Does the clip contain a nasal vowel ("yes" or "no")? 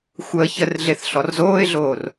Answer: no